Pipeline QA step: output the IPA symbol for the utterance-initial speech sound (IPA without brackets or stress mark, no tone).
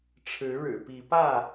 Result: ʈ͡ʂʰ